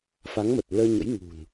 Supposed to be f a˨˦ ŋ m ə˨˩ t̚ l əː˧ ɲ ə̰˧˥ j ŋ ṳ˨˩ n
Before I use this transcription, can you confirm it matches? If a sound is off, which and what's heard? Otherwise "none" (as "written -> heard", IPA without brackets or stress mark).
none